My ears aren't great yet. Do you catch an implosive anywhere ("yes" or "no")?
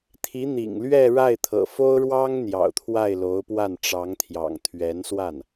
no